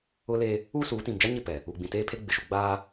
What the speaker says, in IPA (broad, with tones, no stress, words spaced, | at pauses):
ʊ˦le˦ | uː˦suː˨˦tĩ˨m d͡ʒa˦ɲɪ˦˨pɛ˨ | u˨ɡ͡bĩ˨teː˦pʰe˦ ɡ͡bɪ˨ʃu˨ ɡ͡baː˦